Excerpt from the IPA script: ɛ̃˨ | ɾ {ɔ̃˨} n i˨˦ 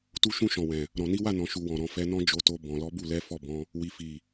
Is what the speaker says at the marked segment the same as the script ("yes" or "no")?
yes